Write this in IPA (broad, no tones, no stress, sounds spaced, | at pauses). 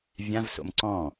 vʲ ã v s o̰ m ǀ ɔ̃